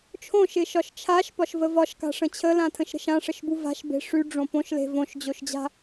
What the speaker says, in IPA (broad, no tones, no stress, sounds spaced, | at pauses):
t͡ʃʰ õ ʃ ɪ ʃ ɒ ʃ t͡ʃʰ a ʃ p ɒ ʃ v ə v ɒ ʃ k a̤ ʂ ə̃ t͡ɕʰ ə l ã tʰ ə̃ ʃ ɾ ə̤ ʃ ã ʂ ə ʃ b u v a̤ ʃ b e̤ ʂ y ɖ͡ʐ õ p õ ʃ l e̤ v õ ʃ d͡ʑ o ʃ d͡ʑ a̤